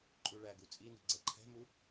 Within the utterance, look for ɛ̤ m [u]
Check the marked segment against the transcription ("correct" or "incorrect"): correct